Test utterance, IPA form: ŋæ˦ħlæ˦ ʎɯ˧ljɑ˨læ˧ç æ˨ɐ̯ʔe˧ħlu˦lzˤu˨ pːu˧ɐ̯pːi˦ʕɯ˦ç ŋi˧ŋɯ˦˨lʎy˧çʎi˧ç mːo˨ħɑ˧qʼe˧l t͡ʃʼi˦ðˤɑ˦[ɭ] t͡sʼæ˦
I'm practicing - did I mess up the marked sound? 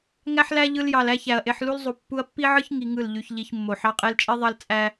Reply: yes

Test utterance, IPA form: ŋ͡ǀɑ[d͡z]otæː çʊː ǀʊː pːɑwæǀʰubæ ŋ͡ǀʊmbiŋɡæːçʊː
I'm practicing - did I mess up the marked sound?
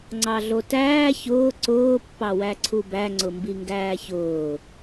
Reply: yes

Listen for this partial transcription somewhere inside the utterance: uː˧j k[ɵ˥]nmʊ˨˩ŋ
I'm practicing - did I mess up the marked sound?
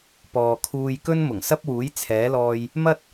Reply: no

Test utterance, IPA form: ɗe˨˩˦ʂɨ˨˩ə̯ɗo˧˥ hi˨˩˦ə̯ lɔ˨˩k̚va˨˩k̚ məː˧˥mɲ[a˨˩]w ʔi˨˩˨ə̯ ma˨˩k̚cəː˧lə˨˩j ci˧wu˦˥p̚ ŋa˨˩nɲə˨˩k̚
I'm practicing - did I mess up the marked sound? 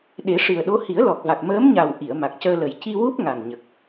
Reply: no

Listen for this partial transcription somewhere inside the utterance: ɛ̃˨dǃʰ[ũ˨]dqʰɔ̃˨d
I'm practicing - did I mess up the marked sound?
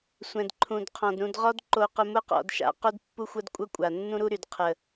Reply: no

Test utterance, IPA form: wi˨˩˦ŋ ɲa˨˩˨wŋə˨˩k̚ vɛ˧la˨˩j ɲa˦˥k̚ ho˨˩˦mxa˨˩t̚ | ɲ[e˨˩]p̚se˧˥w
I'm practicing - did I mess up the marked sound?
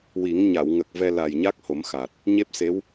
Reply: yes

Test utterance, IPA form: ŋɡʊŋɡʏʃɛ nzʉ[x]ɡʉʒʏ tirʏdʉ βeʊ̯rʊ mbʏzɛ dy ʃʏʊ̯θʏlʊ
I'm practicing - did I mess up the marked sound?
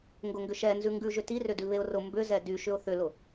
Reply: yes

